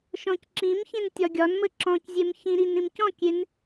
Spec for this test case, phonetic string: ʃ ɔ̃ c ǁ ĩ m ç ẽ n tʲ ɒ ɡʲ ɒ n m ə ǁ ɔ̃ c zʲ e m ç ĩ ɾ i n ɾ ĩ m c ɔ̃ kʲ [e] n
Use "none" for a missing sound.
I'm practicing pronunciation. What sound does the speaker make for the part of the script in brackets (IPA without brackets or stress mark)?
e